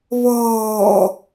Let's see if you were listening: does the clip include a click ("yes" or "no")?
no